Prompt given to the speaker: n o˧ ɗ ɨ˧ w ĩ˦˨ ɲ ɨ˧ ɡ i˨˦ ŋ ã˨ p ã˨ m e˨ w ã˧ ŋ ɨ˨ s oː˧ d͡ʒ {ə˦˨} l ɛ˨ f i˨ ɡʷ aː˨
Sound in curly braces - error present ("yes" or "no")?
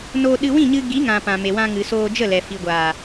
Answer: no